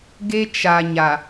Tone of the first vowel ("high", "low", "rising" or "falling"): high